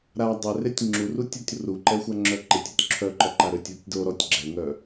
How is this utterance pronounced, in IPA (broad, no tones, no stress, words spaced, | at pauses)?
ɾa dˤɛretʲ ŋ͡ǁuru tʲɔtʲruǃɛxʷa ŋ͡ǁœǃetʲotʲ ǁʰœǃɔǃa ɾøtʲotʲdo ɾɔtʲɡ͡ǁɛŋœ